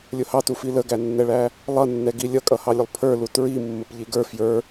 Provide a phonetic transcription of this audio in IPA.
lʲ ʊ h ɑ t u f i l ə ɡ æ nː ɛ ɭ æ | lˠ ʌ nː ɛ ɡ i lʲ ʌ kʼ ʌ h ɑ lʲ ʊ lˠ pʰ ə˞ l u t ɹ i mː ə p ʎ i ɡ ə˞ f j ə˞

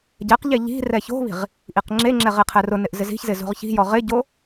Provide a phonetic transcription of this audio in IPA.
ɟ ɛ q ʎ e ʎ i̤ r ɛ ç o̤ β i̤ ʁ | ʔ i q ŋ͡ǁ e ŋ͡ǁ ɛ ʁ e qʰ ɛ r ʊ n ɪ ʔ z ɪ z i̤ ç z ɪ z o̤ ʁ ç i̤ j ɔ ʁ ɪ ɟ o

